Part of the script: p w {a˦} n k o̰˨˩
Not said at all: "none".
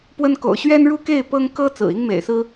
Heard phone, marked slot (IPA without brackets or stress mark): ə˦